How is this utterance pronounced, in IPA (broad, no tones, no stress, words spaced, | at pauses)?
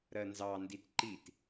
ɾɜnzɑ nditǃit